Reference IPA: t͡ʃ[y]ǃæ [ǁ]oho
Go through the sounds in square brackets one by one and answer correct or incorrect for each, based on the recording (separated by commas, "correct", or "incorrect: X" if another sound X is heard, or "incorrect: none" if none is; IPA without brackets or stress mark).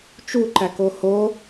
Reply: incorrect: u, incorrect: k